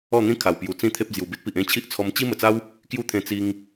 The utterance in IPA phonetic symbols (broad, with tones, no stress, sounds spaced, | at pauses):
ɔ˥˧ n̪ ĩ˦ kʰ a˨˩ w p j u˨˩ t͡s ĩ˦ t̪ʰ e˦ p̚ d͡z j u˨˩ b i˦ t̚ p i˨ ʔ ẽ˥˧ t͡ɕʰ i˦ ʔ t͡sʰ ɔ˧ m t͡ɕ i˦ m ə˨˩ t͡s a˦ w | k j u˦ t̪ʰ ẽ˧ t͡s i˧ ŋ